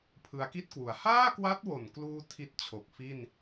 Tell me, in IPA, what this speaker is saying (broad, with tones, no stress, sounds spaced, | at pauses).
pʰ ɯ˧ a̯ k i˥˩ t̚ k w u˩˦ a̯ h aː˥˩ k w a˦˥ t̚ w o˨˩ n k l uː˧ tʰ i˦˥ t̚ t͡ɕʰ o˨˩ k̚ f i˥˩ n